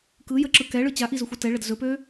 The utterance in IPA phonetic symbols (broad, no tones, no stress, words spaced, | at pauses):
kɯjəǁɯ kɛɭɯ t͡ɕaʔizɵxʷɛ tɛɭəd zɵpø